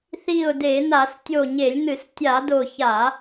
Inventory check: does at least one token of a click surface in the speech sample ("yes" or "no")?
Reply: no